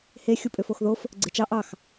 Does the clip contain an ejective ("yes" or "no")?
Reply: yes